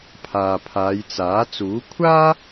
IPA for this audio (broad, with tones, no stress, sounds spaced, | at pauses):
pʰ aː˨ pʰ aː˨˧ j t͡s aː˨˥ t͡s uː˨˥ kʷʰ aː˥